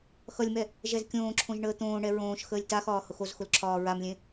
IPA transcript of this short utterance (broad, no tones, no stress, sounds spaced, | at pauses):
x ʌ lʲ m ɛ | ʒ ɛ z kʲ õː ǁʰ õ ʒ ɳ əː t̪ õː ɳ ɛ ɹ õː ʃ x əː lʲ t a x ɒː h ʊ x o z x ʊ l ǁʰ ɒː ɹ a m lʲ ẽ